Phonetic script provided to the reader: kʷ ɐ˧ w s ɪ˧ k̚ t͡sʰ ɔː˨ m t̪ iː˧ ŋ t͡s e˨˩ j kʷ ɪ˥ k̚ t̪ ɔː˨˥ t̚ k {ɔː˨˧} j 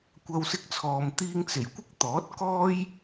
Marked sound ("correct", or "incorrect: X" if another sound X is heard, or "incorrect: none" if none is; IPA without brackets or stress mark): incorrect: ɔː˥